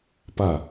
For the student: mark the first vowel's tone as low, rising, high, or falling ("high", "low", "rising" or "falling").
falling